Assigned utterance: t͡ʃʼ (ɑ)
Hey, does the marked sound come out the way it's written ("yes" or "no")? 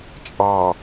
yes